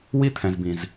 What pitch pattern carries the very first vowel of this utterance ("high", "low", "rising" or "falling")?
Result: high